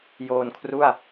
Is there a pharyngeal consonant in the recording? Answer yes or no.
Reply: no